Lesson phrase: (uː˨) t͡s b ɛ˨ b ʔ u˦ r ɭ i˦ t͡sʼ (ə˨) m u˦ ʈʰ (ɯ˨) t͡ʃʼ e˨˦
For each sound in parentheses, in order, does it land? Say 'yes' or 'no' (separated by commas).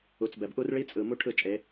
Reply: no, no, no